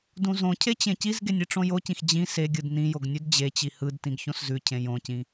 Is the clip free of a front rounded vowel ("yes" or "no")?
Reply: yes